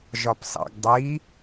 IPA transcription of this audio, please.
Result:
ʒ ɒ p s ɑ̰ ɡ dˤ i

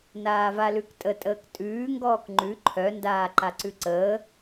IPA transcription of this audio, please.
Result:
n aː v a l ʉ k tʼ ə tʼ əː k tʼ ʉː ŋ ɡ ɔː k ŋ͡ǃ ʉ ǃʰ œ n d aː ǃ a ǀ ʉ ǀ əː

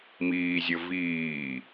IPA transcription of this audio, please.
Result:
m iː zʲ ə v iː

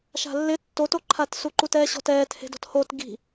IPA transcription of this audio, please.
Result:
ʃ a̤ lː ɪ tː o t o ǃʰ a t s u ǃ u t ɛː ɕ ɔ̤ t ɛː t h e̤ d ɔ̤ t h o t ɡ i̤

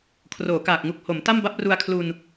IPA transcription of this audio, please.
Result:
kʰ r oː˩˦ k aː˨˩ k̚ ŋ u˨˩ k̚ h o˩˦ m t a˥˩ m b a˦˥ p̚ r u˧ a̯ kʰ l u˧ n

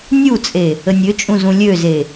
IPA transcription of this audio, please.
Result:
nʲ u t͡sʼ e | ə nʲ ø t͡ʃʼ ũ z ũ lʲ ø z e

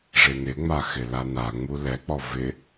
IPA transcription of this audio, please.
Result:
ʐ e n ɪ ŋ͡m a x ɪ l a n a ŋ͡m u l ɛ k͡p ɔ v ɪ

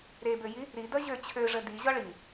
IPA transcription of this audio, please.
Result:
ɾ e b ø j i | ɾ i d ʌ ʑ ø t͡ɕʰ ø ʐ ə d i ʑ ɒ ɭ i

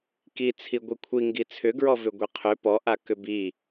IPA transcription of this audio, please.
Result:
k i t͡sʰ i ɡʷ i kʷʰ i ŋ ɡ i t͡sʰ ʏ ɡ ɹ ɔ v ʏ ɡʷ i qʰ ʏ p ɔ ʔ a k ʏ b i

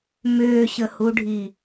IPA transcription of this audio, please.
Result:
m ʏː ɕ ə h u ɖʱ i

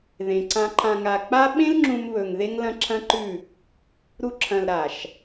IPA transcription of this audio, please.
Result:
ð ẽ˨ ǀ ã˧ ǃ ã˨ ŋ a˨ k͡p a˦ ɓ ẽ˦ l ŋ͡ǁ ũ˧ m β ɵ˨ ŋ ð e˧ ŋ l ɐ̃˧ ǁʰ ɐ̃˦ ǃ ʉ˦˨ | ɾ u˧ ǁʰ ɐ̃˨ l ɾ a˨ ʃ

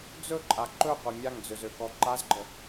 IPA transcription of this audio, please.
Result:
d͡z ɵ ǃʼ a ǃ ɵ qʷ ɛ mʲ a ŋ d͡z ø z ø k ɔ ǃ a z ɡ͡ǃ ə

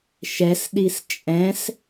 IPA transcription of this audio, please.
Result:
ʃ ɛ s ɗ i s t͡ʃʼ ɛ̃ s

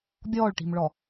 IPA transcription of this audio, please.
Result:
bʲ ɔː ɭ ʈ i̤ m ɭ ɔ

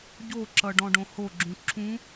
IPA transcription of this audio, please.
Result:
ɟ o ǁ ʌ ɖ ɔ̃ ɖ õ h o ɡ͡ǁ ũ ǁʰ ũ

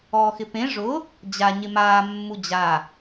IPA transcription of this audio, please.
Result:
ɔː x ɪ p ẽ ʐ ʊ | d͡ʑ a ɲ ɪ m aː mː u d͡ʑ a

